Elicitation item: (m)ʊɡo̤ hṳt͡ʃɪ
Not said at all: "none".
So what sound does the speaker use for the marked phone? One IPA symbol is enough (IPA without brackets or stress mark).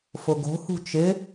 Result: f